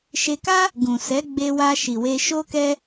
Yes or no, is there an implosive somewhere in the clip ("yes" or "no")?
no